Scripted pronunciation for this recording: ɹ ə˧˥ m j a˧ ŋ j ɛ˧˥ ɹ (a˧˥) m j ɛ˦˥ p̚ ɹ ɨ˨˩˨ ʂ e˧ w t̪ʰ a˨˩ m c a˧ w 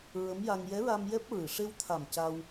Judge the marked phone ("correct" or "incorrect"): incorrect